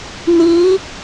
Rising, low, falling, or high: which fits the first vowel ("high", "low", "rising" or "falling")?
rising